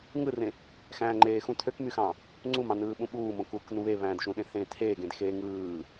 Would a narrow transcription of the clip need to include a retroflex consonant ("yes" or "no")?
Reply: no